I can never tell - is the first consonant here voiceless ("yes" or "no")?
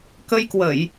yes